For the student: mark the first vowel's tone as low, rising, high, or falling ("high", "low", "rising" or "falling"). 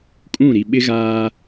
falling